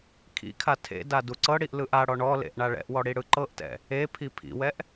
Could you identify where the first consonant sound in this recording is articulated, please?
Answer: velar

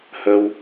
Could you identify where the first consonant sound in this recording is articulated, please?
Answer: glottal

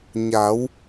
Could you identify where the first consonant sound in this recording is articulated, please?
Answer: palatal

